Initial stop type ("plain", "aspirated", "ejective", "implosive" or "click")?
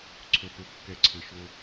click